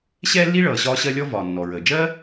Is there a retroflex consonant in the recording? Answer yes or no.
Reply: yes